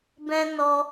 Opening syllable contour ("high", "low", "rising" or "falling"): high